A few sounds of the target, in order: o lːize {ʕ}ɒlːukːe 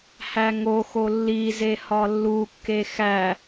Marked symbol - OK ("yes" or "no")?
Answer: no